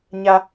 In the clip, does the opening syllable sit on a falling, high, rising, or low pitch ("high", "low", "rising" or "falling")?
high